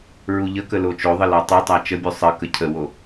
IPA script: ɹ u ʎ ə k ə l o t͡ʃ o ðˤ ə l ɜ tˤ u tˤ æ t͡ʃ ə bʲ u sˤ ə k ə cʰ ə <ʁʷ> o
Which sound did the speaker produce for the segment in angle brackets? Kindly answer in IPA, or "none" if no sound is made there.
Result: w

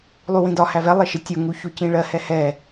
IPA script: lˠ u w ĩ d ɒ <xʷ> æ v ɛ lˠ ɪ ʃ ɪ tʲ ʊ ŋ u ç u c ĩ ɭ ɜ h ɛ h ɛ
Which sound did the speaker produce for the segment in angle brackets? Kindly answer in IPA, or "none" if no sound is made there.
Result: h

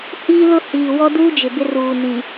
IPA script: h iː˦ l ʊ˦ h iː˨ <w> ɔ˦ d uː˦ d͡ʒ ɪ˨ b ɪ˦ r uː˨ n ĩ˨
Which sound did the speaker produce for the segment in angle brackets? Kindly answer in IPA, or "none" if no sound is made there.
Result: w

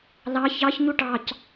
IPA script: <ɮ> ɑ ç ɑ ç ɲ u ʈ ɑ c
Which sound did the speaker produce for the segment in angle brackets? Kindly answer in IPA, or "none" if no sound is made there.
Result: l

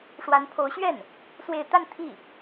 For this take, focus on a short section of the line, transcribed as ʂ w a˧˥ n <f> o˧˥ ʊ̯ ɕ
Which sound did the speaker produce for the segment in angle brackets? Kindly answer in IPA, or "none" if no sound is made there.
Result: pʰ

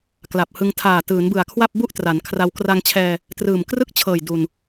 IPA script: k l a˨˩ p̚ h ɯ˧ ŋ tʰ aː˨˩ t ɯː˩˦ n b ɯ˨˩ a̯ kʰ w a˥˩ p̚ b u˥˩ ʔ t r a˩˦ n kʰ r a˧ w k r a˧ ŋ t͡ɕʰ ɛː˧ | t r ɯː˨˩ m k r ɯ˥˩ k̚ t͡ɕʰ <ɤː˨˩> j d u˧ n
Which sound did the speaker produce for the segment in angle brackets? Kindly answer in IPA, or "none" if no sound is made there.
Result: ɤː˨˩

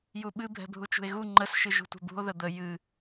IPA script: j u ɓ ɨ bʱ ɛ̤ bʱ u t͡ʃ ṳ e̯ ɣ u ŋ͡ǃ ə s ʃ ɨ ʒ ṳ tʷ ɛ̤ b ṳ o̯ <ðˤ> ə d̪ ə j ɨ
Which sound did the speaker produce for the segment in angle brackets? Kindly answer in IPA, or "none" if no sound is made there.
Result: ð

